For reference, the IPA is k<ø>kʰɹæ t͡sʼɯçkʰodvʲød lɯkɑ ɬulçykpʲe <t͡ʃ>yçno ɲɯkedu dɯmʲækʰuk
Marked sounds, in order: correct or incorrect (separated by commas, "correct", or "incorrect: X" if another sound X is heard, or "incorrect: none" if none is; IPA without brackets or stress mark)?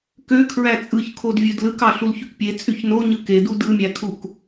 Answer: correct, incorrect: t͡sʼ